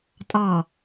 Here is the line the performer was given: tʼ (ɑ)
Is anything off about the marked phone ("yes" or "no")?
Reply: no